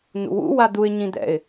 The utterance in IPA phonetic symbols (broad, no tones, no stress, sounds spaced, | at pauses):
n̪ ṵ w ṵ w a d̪ u ɪ̯ ɲ ĩ d̪ ɛ̰ ɪ̯